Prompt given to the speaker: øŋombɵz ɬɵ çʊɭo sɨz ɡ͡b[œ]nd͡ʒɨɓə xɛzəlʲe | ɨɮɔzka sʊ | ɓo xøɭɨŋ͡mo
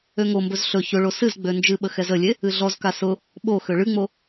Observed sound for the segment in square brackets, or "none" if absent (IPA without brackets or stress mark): ø